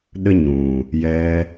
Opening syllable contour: high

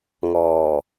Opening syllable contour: low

